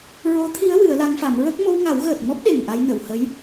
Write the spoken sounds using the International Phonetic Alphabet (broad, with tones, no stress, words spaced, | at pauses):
ɹo˧˥t̪ʰi˧˥ə̯ wɨ˨˩˦ə̯la˧˥ŋfa˨˩˦m ɹə˦˥k̚ mo˧wŋa˨˩˦wɣəː˨˩t̚mɔ˦˥p̚ ɗe˨˩ŋʔa˧jnə˨˩˨whə˧˥j